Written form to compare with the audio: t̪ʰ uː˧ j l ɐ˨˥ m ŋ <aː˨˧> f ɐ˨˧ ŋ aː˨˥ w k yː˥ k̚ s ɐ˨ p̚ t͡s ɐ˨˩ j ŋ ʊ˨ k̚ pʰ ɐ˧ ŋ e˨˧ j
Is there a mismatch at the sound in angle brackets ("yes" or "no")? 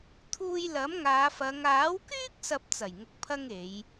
no